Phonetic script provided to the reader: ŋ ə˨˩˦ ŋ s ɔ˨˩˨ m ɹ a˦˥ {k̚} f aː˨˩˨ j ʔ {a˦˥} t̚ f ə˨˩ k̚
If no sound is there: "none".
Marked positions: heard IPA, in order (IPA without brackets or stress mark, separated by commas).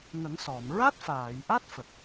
t̚, a˦˥